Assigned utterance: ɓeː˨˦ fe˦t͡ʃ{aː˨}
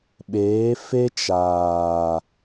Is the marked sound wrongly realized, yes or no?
no